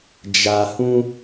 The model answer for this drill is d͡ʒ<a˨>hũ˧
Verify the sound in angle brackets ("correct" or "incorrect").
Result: correct